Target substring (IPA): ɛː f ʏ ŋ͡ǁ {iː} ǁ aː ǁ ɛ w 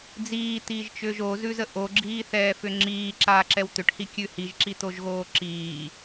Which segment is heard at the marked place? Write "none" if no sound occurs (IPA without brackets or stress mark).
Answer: iː